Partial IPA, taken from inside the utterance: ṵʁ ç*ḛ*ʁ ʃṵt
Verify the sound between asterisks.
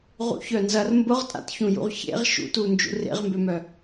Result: correct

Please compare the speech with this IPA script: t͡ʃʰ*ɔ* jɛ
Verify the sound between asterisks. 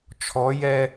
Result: correct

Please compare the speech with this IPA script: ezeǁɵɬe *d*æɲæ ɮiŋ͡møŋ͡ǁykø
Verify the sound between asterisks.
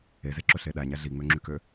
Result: incorrect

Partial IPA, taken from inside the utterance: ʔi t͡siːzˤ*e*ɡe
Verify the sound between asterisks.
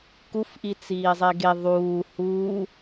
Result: correct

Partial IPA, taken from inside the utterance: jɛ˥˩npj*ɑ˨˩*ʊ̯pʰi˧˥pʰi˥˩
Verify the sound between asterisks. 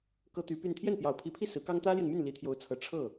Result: correct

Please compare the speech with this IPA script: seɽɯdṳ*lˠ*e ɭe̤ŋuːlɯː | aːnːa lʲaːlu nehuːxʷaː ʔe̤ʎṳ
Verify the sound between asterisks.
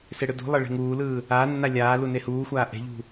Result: correct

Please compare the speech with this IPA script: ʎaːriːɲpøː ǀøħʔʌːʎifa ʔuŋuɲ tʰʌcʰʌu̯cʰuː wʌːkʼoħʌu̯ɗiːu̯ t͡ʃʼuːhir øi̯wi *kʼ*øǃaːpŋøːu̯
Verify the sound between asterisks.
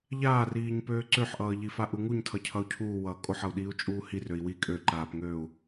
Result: correct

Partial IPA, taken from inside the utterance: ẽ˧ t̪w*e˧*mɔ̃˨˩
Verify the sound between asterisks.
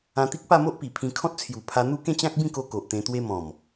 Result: correct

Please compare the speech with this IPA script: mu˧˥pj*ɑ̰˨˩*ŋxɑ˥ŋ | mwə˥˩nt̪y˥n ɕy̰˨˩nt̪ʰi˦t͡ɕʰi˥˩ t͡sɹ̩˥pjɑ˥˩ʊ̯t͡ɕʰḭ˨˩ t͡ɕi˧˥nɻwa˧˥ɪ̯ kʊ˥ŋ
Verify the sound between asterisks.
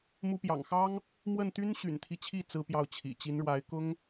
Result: correct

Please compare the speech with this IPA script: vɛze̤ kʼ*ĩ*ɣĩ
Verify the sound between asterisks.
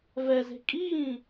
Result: incorrect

